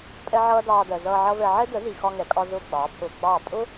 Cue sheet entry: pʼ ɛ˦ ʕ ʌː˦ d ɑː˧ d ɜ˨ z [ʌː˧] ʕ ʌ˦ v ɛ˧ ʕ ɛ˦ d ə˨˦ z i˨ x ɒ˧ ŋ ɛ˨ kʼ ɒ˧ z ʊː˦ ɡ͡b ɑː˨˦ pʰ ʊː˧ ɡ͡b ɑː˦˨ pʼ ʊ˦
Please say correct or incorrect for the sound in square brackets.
correct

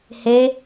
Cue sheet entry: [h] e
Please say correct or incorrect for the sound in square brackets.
correct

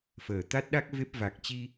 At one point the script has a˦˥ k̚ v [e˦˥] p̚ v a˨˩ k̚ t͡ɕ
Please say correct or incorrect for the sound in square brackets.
correct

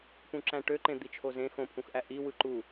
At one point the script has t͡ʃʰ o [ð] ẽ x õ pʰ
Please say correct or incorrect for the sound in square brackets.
incorrect: z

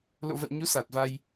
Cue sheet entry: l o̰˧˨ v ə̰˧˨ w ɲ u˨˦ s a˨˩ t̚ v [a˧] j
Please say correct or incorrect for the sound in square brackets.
correct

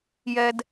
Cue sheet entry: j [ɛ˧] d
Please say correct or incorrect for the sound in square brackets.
correct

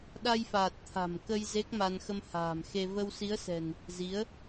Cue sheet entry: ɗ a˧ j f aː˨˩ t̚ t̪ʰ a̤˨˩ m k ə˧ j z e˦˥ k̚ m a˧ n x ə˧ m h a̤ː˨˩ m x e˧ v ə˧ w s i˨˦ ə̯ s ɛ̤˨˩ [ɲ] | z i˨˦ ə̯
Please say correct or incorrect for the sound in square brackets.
incorrect: n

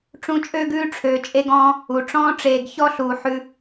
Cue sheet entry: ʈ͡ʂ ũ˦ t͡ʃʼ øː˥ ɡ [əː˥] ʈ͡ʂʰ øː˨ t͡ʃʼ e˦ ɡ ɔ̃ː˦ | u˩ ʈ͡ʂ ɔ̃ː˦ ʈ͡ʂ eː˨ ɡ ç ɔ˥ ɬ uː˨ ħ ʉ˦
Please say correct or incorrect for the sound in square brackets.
incorrect: ʉː˥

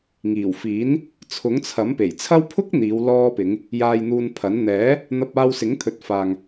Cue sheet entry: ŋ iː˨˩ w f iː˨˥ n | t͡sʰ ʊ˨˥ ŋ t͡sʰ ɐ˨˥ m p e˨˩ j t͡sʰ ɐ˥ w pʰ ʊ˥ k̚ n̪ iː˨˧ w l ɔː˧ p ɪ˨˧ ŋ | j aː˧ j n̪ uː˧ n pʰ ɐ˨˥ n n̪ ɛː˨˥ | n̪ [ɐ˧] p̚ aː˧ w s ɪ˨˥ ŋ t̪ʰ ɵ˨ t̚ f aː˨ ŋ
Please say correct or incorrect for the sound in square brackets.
correct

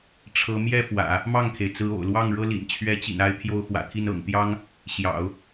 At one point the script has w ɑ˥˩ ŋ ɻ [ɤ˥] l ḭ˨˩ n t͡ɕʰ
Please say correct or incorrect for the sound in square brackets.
correct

